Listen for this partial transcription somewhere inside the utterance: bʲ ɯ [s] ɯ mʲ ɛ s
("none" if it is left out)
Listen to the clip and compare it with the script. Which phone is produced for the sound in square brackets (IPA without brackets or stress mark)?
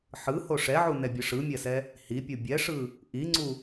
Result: ʂ